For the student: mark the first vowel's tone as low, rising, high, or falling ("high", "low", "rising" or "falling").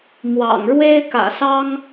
low